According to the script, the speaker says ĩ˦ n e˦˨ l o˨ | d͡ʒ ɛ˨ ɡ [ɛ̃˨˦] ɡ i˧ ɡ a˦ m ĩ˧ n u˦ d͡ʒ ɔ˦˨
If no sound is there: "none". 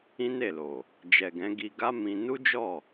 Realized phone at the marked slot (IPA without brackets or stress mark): ɛ̃˨˦